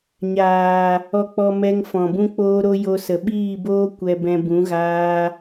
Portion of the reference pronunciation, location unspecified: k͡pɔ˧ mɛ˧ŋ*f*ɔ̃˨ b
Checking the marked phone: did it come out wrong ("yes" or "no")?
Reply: no